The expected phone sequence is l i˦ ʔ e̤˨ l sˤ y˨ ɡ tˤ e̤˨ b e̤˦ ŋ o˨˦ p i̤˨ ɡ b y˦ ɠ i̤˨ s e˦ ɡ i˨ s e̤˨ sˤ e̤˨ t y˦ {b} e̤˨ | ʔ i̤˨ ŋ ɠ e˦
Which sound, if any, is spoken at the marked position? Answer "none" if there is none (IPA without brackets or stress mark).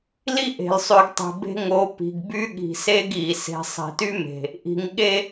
m